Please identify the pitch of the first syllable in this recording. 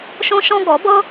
high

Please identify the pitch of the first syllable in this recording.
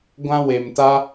high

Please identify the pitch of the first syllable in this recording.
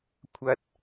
low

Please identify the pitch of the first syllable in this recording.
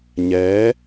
rising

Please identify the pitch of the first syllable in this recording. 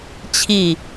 falling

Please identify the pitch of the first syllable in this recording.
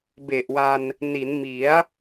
low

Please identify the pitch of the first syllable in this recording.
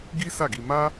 high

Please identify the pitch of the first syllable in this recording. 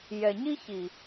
low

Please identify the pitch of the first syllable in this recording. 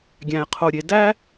low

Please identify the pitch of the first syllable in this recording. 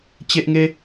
high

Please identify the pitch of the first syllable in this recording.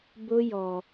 high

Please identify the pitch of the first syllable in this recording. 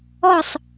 falling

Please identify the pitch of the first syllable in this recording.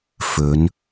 rising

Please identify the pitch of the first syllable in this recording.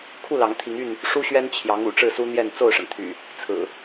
falling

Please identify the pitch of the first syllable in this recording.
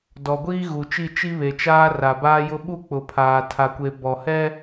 low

